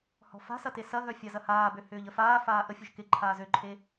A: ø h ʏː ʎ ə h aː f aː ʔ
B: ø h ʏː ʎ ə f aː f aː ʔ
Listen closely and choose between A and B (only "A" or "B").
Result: B